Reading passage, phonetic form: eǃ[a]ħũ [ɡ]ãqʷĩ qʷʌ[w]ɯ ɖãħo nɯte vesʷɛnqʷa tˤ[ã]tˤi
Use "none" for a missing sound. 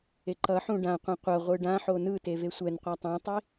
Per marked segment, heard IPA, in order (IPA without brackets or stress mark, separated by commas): ʌ, ɖ, ʁʷ, ã